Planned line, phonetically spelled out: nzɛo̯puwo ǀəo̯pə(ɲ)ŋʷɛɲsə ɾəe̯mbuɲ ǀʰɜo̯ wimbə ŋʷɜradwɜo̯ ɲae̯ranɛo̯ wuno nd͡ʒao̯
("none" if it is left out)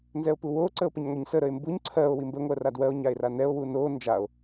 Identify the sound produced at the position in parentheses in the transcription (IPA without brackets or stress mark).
ɲ